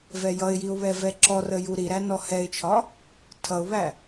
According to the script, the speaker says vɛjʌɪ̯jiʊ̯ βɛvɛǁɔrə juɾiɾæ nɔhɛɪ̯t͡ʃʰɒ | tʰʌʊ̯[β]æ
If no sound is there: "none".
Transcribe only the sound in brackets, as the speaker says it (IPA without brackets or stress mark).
β